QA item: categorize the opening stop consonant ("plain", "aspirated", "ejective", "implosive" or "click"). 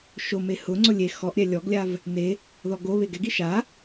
click